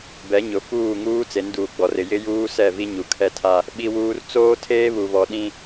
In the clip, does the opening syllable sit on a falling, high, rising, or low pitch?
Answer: rising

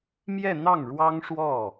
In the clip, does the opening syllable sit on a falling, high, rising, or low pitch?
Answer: falling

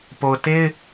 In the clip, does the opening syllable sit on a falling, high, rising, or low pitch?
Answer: low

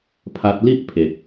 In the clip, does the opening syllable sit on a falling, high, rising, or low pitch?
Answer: high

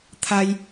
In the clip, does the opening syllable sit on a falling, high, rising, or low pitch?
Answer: high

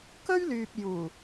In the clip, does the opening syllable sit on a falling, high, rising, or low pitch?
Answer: high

